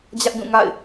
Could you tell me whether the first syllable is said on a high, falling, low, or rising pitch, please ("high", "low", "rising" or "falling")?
high